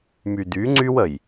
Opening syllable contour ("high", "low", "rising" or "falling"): low